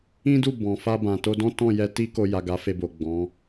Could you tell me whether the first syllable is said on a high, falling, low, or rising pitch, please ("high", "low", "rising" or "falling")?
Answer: high